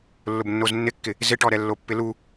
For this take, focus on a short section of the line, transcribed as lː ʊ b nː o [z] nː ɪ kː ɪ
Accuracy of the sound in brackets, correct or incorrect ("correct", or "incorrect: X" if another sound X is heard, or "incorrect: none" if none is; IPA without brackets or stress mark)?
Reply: correct